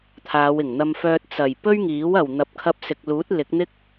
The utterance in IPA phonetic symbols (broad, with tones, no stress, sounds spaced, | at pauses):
t̪ʰ aː˨˧ w ɪ˨˩ ŋ n̪ ɐ˧ m f œː˧ t̚ t͡s ɐ˨˩ j p ɵ˥ ɥ ŋ iː˨˥ w ɐ˨˩ w n̪ ɐ˨˥ p̚ kʰ ɐ˧ p̚ s ɪ˨ k̚ l uː˨˥ t̚ l ɪ˨˥ k̚ n̪ ɪ˧ k̚